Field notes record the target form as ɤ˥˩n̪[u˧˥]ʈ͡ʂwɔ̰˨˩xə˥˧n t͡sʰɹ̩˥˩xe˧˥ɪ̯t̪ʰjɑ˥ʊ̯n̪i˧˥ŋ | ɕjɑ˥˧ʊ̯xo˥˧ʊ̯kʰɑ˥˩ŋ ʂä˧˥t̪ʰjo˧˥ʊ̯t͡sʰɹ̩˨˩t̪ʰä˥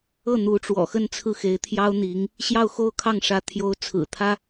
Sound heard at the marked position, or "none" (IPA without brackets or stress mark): u˧˥